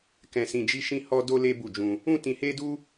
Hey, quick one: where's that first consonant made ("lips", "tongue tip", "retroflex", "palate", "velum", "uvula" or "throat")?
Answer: velum